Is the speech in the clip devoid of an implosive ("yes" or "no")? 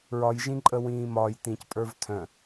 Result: yes